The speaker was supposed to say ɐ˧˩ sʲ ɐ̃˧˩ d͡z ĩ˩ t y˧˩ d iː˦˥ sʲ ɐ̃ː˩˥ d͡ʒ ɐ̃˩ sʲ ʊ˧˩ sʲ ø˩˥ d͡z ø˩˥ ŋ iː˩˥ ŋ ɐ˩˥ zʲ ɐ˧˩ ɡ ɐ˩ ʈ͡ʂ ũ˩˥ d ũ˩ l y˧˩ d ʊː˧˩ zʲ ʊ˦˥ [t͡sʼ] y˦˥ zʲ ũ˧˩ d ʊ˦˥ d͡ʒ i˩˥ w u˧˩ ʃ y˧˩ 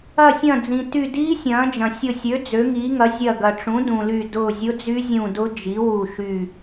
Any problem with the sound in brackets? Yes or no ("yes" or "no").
yes